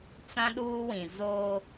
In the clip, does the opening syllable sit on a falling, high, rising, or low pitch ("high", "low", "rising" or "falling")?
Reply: high